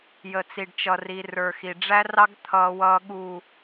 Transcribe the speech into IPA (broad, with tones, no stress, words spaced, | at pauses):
jə˨t͡si˨ɖt͡ʃʌ˨ri˨ rə˞˨xi˨ɖ͡ʐæ˦rɑ˦ɡ t̪ʰʌː˨wʌː˨ ɠu˨